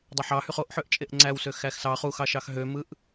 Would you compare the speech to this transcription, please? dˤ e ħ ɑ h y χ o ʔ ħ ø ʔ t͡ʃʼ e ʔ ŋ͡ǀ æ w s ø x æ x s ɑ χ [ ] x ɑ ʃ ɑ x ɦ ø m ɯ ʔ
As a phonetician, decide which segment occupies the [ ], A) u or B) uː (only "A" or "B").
A